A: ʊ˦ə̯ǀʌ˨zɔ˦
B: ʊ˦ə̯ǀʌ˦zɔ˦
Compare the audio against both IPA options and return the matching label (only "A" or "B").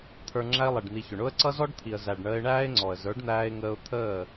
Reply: B